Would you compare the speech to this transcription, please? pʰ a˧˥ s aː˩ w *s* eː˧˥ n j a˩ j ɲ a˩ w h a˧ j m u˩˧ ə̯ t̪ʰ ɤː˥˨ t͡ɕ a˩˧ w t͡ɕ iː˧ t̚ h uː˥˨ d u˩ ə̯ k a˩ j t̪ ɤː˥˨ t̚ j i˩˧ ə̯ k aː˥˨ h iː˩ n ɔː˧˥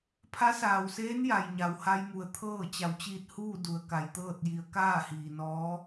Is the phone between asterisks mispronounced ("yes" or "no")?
no